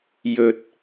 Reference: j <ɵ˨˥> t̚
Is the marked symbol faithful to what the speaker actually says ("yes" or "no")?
no